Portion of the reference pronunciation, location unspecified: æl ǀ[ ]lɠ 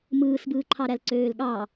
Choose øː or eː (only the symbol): øː